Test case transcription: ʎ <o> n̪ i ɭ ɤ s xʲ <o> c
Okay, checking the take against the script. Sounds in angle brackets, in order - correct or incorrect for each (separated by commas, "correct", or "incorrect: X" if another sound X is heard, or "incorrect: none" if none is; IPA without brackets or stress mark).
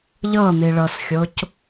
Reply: incorrect: ɤ, correct